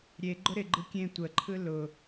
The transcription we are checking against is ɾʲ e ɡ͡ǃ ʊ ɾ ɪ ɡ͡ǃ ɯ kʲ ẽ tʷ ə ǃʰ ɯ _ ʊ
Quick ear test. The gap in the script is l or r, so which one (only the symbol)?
l